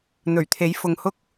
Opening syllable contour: low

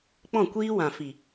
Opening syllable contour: falling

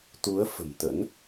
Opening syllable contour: rising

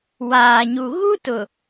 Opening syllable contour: low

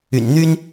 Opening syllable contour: low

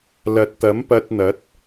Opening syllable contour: low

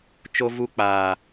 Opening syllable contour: high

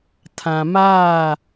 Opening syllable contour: low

